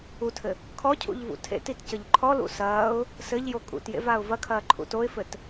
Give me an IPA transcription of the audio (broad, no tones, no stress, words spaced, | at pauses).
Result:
utʰɘ | kʰɔcʰṵʎ vṵtʰḛtit cɘʎǃʰɔlṵ sɐːʊ̯ | sɘʎjo kʼṵtjḛv aʊ̯vɐkʰɐː ǃʰṵtoɪ̯fɘt